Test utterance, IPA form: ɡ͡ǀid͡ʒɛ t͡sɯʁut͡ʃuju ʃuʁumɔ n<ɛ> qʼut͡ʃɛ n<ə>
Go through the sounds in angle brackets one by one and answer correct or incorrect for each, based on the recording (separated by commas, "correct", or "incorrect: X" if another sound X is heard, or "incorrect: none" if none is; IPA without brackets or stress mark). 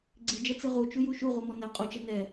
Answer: correct, incorrect: ɛ